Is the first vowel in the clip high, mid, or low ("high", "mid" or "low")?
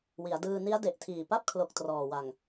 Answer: high